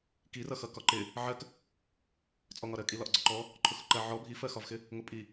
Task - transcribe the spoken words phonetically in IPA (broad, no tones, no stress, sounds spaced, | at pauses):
k i r ʌ x ʌ k ɒ ǃ ɪ | ʕ ɜ k | t͡sʼ ɔ ŋ ɒ ɾ ɜ kʼ i l ɒ ʔ ɡ͡ǀ ɔ ǃ ɔ | ǃʰ ʊ x ʊ ǃ ɜ ʕ ɔ bʱ i f ɜ x ɒ v x ɪ | ŋ ʊ pʼ i